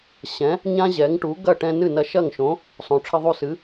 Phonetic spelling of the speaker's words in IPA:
ɕ ɛ̃˩˥ | ɲ ã˥ ʑ ɛ˩˥ ŋ ʈ u˩˥ ɡ ɐ˥˩ ʈ ɛ̃˧ n ɨ˥˩ n ɐ˧ ʃ ɐ˥˩ ŋ ʃ õ˩˥ | sˤ õ˩ ʈ͡ʂʰ ɘ˧ ðˤ u˧ s ɨ˩˥

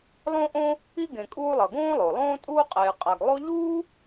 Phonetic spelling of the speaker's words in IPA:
lˠ õ˦ ʔ õ˦ | i˥ ɡ ẽ˨ kʼ uː˦ lˠ ʌ˩ ɡ õː˥ lˠ o˩ lˠ õː˥ tʼ uː˥ qʼ eː˨ qʼ a˨ ɡ lˠ o˦ ʎ uː˥

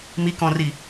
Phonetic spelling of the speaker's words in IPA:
m i k ɔ̃ r i

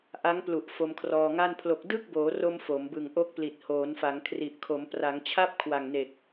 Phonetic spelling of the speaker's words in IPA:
ʔ a˦˥ ŋ p l u˨˩ ʔ f o˧ m kʰ r ɔː˧ ŋ a˥˩ n pʰ l o˨˩ k̚ d ɯ˥˩ k̚ b oː˩˦ r o˧ m f o˩˦ m b ɯ˨˩ ŋ ʔ o˦˥ k̚ p l i˨˩ t̚ h oː˩˦ n f a˩˦ ŋ kʰ r i˨˩ ʔ kʰ o˩˦ m p r a˩˦ ŋ t͡ɕʰ a˥˩ p̚ kʰ w a˨˩ ŋ n e˨˩ k̚

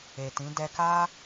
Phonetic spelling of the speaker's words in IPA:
e˨ t ĩ˨˦ d ɛ˧ k a˦

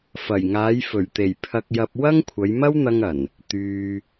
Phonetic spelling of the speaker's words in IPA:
f ɐ˨˩ j ŋ aː˨˧ j f ɵ˨˩ ɥ t̪ e˨˩ j pʰ ɐ˧ k̚ j ɐ˧ p̚ w ɐ˥ ŋ kʷʰ ɐ˨˧ j m ɐ˥ w n̪ ɐ˧ ŋ ɐ˨˩ n | t̪ yː˨

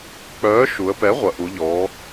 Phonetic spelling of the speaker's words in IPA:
k͡p œː˩˥ ʃ u˩˧ ə̯ p ɛ˩˥ ʁʷ ɐ˩˧ ʔ u˩˧ ʎ ɔː˩˧

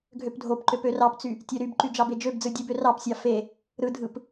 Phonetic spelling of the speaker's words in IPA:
ɡʱ ø p dʱ o p ǃ ø p ø r ɑ p t͡s y | tʲ ø ɾ y b ǃ y d͡ʒ ɑ b e d͡ʒ ø b d͡z ɯ dʲ ɯ b ø r ɑ p sʲ ɑ f e | ɾ ɯ dʱ ɯ p

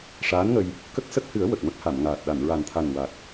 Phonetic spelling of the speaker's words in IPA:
ʂ aː˧˥ n ŋ ə˧ j | k ə˦˥ k̚ s ə˦˥ k̚ h ɨ˨˩˦ ə̯ w ə˨˩ k̚ m ə˦˥ k̚ h a˨˩˨ m ŋ aː˨˩ t̚ ɗ a˨˩˨ n ɹ a˨˩ n t̪ʰ a˨˩ n w a˨˩ k̚

